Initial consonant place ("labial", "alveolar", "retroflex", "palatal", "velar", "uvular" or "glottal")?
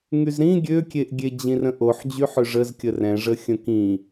velar